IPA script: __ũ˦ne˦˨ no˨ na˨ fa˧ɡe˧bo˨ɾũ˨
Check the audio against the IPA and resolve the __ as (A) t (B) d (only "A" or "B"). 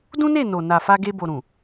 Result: B